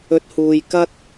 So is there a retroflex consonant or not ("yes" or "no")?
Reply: no